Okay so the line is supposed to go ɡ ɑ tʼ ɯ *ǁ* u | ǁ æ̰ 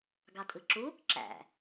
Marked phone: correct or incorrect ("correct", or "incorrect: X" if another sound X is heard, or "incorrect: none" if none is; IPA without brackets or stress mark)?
correct